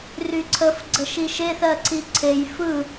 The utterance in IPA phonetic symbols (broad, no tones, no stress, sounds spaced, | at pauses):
r y ǀʰ ə f ɡ͡ǀ ə ʃ i ʃ e θ ɜ ǀ i ǀʰ e j f ɯ